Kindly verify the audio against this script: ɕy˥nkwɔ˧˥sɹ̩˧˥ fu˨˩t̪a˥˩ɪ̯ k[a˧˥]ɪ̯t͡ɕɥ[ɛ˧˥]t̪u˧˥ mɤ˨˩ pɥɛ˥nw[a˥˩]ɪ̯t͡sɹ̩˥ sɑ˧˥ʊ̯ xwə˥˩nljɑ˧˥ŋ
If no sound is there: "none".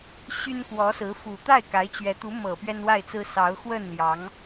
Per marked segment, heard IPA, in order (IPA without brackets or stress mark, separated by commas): a˧˥, ɛ˧˥, a˥˩